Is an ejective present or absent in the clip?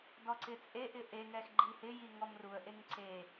present